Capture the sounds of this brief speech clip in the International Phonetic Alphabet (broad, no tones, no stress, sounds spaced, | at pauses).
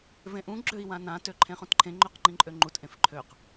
v ẽ ʔ ũ ɡ͡ǁ ø i̯ w ã n ã t ø ǃʰ ẽ χ ũ t ǃʰ ẽ ŋ͡ǃ ø q ŋ͡ǃ ĩ ǃʼ ø ŋ͡ǃ u t ʔ ẽ f ǃʰ ø q